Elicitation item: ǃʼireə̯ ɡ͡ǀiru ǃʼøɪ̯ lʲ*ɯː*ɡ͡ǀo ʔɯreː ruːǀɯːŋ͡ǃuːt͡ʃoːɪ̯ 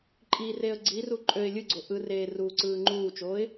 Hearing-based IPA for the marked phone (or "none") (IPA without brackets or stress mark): ɯ